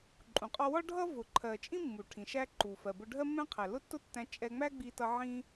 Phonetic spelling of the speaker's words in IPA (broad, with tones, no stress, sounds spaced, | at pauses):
ǃʼ ũ˩ qʼ ɒ˧ w ɒ˥ ɖʱ ʌ˥ v ʊ˩ ǃʰ ɜ˩ t͡ʃʼ ĩ˥ mː u˩ ʈʰ ĩ˩ ʃ æ˧ ǃ u˩ f ɜ˩ b ʊ˧ ɖʱ ɜ˥ mː ɛ̃˥ qʰ æ˩ l ʊ˥ tː ʊ˥ tː æ̃˧ t͡ʃʼ ɛ˧ ŋ͡m æ˥ ɡ͡b i˧ t ʌ˧ ʕ ĩ˧